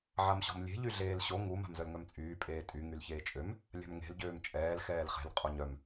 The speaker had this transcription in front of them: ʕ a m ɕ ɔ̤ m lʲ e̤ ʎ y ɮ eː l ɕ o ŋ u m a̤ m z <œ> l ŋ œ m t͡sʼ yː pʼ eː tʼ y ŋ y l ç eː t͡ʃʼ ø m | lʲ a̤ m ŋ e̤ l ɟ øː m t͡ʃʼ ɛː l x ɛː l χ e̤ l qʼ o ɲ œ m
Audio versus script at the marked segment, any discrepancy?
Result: no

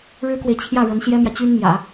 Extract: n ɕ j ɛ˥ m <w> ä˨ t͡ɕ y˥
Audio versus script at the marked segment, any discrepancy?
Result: yes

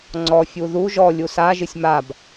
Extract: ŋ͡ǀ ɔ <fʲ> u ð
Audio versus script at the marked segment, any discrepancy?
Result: no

